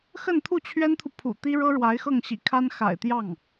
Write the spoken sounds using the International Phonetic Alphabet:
xə˥˧nt̪ʰu˥˩t͡ɕʰɥɛ˥nt̪ʰu˨ pʰṵ˨˩t̪i˥ɻɤ˥ ɻwa˧˥ɪ̯xɤ˥˩ŋɕḭ˨˩kʰa˥n xa̰˨˩ɪ̯t̪jɑ˥˩ŋ

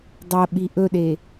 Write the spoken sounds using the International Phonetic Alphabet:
dˤɐɓi ʔɵɗe

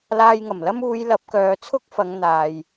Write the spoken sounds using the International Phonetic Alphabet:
laː˧jŋɐ˨˩mlɐ˥m uː˨˧j lɐ˨˥p̚kœː˨˧t͡sʰʊ˥k̚fɐ˨˧ŋ n̪aː˨j

